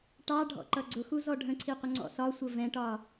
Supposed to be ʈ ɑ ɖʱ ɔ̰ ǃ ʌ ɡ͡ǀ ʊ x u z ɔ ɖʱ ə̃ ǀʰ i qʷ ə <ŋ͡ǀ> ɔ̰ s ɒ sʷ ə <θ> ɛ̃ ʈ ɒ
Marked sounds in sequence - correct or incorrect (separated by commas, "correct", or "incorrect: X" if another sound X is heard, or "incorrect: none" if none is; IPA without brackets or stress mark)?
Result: correct, incorrect: v